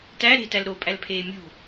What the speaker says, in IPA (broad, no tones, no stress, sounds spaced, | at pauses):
t æ ɾ e̤ t æ l ɾ o pʼ æ l pʰ eː mʲ ṳ